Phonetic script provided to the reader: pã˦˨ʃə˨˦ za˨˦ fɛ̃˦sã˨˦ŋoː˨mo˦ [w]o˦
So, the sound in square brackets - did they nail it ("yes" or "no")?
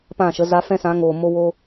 yes